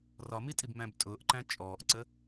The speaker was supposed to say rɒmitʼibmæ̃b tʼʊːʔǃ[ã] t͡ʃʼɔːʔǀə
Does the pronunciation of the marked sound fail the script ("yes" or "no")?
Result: yes